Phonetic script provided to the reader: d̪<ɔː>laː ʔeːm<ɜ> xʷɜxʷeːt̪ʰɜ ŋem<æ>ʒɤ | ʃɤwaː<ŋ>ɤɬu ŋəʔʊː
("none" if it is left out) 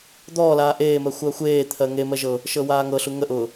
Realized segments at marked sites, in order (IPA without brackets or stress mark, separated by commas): ɔː, ɜ, ɜ, ŋ